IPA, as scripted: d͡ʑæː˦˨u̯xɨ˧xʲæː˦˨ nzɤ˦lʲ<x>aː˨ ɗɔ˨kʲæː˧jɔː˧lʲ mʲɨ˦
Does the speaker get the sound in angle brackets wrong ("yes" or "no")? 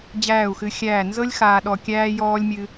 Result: no